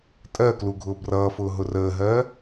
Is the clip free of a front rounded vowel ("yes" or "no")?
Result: yes